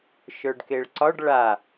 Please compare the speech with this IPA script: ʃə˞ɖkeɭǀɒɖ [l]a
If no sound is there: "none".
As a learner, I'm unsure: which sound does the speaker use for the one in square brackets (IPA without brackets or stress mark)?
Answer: ɭ